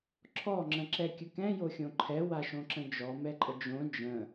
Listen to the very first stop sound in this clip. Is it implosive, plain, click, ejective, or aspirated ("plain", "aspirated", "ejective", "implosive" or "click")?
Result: click